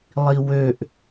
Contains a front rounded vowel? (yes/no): yes